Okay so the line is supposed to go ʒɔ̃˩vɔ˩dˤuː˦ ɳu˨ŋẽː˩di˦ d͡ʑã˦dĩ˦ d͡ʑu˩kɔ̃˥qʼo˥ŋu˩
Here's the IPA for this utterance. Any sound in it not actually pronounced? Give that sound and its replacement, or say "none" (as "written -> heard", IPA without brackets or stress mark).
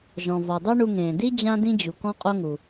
uː˦ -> u˦